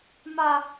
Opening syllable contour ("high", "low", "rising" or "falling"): high